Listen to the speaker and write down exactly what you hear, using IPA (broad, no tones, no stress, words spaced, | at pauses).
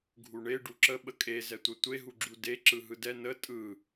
ɡʱuɳe ɖuǁə ɓəkʼe zɛtʷətʷe ɦuɡ͡ǁude ǁɯɦɯdɛ nə tʼɯ